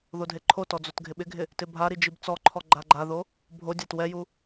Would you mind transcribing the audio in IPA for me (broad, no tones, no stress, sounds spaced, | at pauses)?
ð o dʱ e ǃʰ o t ɔ d͡z o t ɡʱ ɪ ɓ ɪ ɡʱ ɪ | t ɪ bʱ a ɾ i d͡ʒ i b t͡s ɔ ǃʰ ɔ ɡ͡ǃ a ɡ͡ǃ a ð o | bʱ o dʲ a t w ɛ j u